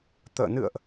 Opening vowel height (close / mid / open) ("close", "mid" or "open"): mid